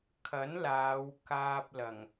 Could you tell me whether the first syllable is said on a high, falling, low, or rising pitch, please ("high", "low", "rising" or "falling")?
rising